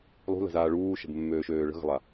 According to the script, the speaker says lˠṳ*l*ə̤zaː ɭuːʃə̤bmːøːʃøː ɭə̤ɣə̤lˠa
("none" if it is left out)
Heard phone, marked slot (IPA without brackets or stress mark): l